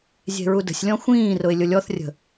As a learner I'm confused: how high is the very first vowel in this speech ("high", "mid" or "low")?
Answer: mid